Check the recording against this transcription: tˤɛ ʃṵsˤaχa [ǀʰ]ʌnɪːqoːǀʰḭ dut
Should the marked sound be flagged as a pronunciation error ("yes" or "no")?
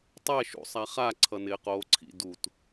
no